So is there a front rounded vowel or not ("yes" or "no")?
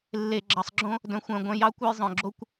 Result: yes